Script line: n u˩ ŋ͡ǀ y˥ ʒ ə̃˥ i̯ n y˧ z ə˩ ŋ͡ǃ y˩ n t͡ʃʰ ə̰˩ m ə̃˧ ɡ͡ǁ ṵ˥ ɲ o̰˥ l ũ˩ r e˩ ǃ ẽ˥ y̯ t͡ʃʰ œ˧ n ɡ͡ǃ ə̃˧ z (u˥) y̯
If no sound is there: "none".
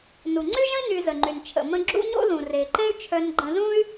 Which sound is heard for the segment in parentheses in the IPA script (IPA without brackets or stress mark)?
ũ˥